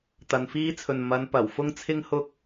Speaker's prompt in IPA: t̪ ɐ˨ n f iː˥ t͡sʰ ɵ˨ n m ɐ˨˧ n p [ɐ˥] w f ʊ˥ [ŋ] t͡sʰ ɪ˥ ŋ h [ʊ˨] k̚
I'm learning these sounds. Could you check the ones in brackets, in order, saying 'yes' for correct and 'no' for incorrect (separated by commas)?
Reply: no, yes, no